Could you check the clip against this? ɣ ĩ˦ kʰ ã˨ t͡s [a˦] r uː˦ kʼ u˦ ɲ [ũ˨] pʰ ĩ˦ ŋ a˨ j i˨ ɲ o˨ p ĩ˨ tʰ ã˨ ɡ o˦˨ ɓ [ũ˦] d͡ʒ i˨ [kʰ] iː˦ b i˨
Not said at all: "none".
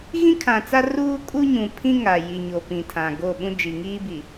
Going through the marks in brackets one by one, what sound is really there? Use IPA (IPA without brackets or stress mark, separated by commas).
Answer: a˦, ũ˨, ũ˦, ŋ